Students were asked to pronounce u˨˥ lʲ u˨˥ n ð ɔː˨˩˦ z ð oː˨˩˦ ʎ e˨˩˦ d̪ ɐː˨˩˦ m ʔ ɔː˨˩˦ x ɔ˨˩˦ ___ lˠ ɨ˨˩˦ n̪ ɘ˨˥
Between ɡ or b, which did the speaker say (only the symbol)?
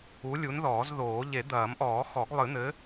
ɡ